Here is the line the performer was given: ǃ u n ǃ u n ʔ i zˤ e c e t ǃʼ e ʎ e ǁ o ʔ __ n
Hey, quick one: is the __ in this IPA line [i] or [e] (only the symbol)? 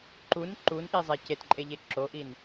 i